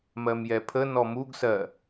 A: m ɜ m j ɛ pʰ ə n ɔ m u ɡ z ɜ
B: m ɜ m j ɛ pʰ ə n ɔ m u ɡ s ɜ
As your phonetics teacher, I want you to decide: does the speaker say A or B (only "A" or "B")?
B